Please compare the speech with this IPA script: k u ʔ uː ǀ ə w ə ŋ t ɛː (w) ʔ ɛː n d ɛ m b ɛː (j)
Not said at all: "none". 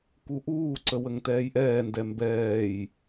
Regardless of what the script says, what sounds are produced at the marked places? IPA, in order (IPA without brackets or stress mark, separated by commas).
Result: j, j